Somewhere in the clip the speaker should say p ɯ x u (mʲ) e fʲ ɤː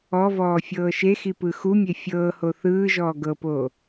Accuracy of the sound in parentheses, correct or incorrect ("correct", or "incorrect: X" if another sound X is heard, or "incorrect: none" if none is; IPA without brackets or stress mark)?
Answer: correct